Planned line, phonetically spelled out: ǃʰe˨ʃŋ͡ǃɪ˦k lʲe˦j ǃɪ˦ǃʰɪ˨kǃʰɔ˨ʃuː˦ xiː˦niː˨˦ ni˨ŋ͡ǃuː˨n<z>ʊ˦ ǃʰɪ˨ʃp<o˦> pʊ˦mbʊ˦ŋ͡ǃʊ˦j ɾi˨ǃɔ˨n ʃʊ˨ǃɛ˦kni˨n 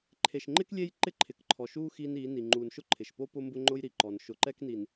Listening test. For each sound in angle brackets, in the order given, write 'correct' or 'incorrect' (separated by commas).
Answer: incorrect, correct